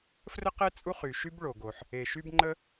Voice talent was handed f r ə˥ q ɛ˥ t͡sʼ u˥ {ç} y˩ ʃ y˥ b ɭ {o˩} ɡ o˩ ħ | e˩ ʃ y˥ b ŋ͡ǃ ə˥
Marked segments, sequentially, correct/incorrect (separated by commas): incorrect, correct